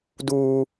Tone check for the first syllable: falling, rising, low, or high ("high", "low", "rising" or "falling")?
high